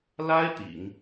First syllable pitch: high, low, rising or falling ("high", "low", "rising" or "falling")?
high